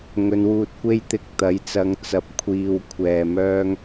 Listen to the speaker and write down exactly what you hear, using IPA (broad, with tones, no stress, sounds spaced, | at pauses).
ŋ ɵ˨˧ n w uː˧ t̚ kʷ e˥ j t̪ ɪ˧ k̚ t̪ ɐ˨˥ j t͡s ɐ˨˧ ŋ t͡s ɐ˨˥ p̚ kʷʰ iː˨ w kʷʰ ɛː˨ m œː˥ ŋ